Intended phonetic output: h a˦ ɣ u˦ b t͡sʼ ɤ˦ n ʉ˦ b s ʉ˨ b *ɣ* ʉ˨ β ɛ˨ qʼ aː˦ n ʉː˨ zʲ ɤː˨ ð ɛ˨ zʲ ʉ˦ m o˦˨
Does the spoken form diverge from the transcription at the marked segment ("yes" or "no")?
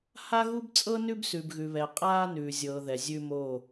no